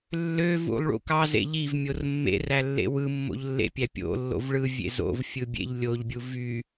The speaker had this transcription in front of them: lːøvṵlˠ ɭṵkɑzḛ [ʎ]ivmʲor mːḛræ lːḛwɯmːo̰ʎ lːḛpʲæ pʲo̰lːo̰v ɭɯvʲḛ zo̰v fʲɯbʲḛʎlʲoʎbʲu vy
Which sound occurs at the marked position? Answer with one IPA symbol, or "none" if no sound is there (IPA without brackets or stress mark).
ʎ